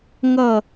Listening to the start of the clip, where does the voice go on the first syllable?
falling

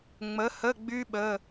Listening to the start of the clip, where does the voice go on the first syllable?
rising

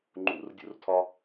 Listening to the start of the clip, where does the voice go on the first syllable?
high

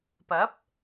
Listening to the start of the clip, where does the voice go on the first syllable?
rising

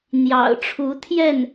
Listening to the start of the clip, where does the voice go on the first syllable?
low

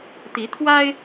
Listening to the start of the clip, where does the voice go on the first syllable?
rising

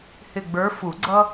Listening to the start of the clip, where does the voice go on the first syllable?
falling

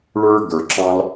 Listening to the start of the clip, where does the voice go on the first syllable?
high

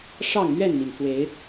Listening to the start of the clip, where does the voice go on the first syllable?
falling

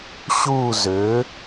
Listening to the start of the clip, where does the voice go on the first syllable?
falling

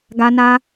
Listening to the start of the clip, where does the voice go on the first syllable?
high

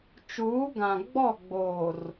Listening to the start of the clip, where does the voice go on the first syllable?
rising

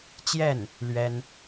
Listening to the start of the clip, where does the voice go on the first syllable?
falling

